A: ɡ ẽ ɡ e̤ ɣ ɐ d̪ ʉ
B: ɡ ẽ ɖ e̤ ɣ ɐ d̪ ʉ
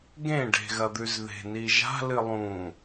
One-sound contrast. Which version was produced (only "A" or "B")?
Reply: B